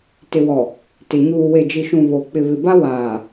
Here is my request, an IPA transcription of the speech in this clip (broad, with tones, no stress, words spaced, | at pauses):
tɪ˨wɔ˨ | tɪ˨ ɲuː˨ we˨d͡ʒi˨ʃũ˨ βo˨ k͡pɪ˨βɪ˨ba˦ waː˨